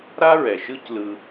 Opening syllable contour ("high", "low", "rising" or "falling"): high